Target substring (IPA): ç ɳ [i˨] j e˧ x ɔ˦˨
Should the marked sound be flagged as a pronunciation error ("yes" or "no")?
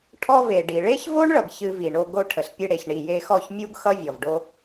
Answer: no